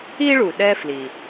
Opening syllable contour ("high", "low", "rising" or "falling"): high